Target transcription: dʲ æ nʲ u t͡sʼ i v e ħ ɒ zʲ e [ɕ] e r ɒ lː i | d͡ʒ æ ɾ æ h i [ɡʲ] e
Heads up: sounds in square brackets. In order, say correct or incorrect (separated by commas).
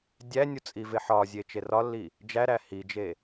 incorrect, incorrect